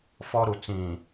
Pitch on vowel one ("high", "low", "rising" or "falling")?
high